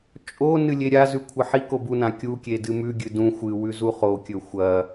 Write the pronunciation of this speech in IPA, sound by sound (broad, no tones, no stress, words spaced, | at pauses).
t͡ʃʼo nɨlʲeɾʲazʉ kʷʰɐħiko bunã kʲukʲe dɨmʉɡʲɨ dũ xʷɨwʉ zuχokʲɵ xʷɐ